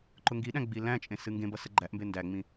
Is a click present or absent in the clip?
present